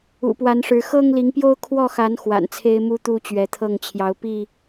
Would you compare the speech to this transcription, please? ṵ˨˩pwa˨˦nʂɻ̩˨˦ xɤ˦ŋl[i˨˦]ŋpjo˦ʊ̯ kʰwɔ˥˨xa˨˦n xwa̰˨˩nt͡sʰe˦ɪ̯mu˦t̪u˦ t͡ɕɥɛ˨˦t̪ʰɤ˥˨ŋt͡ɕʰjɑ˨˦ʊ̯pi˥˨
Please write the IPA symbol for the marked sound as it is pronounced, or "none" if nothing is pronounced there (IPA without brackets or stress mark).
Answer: i˨˦